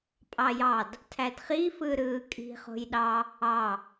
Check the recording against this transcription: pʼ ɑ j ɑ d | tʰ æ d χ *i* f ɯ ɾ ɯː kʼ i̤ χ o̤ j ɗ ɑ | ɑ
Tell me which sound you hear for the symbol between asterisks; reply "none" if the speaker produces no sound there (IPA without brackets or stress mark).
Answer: i